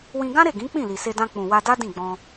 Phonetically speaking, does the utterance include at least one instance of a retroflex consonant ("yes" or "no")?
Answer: no